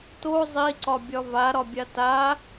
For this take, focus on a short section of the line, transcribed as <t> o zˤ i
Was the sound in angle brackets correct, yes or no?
yes